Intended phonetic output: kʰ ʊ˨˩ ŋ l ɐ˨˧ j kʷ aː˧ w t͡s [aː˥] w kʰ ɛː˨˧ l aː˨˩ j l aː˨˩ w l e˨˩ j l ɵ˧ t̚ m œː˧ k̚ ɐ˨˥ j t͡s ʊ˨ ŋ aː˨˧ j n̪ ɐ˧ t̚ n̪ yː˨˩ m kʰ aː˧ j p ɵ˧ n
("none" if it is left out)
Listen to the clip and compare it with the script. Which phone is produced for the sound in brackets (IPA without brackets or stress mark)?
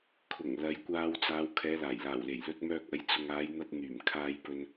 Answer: aː˨˧